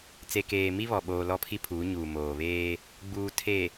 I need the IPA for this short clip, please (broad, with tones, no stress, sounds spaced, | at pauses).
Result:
t͡s e˨ k eː˨ m i˦ β ɔ˨ ɓ oː˨ l ɔ˦ pʰ i˦ pʰ uː˨˦ ɲ uː˨ m oː˨ β eː˦ | ɡ͡b uː˨ tʰ e˨